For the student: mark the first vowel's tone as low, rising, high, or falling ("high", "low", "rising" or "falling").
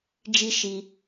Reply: high